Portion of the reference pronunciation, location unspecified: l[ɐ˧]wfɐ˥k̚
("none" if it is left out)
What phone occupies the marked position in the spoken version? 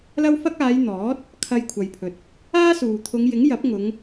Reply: ɐ˥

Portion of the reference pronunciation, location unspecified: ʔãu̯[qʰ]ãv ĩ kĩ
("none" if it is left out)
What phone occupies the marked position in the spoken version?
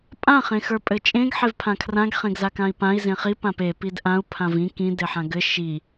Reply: pʰ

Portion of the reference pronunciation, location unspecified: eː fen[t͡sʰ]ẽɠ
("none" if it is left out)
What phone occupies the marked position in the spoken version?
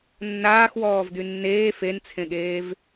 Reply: t͡sʰ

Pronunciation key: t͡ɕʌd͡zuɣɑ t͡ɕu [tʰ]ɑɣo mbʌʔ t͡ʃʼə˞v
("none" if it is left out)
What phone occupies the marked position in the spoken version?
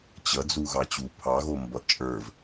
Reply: pʰ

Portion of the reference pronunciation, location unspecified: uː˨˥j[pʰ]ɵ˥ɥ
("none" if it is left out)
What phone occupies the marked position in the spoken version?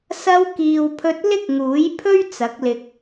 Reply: pʰ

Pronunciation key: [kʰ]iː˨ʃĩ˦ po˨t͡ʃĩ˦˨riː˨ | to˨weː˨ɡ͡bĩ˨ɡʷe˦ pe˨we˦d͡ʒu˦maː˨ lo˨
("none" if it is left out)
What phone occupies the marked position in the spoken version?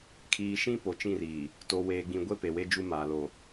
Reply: kʰ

